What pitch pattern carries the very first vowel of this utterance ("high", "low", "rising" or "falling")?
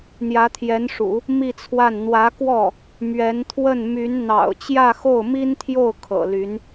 rising